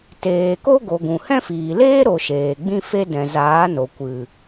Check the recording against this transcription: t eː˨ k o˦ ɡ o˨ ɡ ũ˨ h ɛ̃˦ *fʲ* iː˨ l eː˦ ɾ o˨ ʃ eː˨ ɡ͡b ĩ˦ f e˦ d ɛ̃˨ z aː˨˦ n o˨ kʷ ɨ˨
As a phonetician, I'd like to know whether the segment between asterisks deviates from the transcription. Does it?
yes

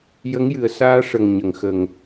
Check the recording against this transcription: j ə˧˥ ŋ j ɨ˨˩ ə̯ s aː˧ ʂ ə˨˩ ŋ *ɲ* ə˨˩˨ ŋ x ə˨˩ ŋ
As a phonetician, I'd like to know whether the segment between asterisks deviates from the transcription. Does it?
no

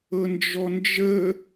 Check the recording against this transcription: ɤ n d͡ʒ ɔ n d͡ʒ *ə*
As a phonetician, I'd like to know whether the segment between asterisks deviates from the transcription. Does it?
no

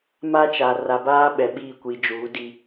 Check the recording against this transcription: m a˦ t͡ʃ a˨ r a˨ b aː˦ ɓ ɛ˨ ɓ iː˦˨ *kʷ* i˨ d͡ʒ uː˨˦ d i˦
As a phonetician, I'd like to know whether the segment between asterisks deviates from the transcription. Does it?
no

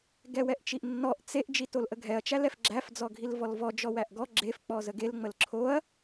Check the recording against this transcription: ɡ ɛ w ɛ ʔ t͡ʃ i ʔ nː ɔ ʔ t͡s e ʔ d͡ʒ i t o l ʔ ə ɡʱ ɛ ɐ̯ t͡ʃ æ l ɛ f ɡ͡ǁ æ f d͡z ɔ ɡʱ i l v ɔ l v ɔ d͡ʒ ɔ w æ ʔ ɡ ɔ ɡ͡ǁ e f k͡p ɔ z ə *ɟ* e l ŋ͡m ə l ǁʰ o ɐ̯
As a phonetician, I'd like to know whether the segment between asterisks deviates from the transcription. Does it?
yes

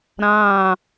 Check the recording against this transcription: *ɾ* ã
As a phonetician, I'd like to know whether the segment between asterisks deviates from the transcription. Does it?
no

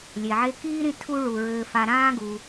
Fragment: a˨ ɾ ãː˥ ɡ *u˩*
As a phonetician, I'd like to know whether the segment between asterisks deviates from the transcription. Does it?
no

